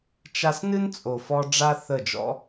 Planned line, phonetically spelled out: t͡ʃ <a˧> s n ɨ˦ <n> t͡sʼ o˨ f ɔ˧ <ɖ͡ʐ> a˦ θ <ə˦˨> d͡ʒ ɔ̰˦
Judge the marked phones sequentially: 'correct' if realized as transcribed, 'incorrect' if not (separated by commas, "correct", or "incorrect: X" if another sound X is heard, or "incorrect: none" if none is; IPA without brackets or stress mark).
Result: correct, correct, correct, correct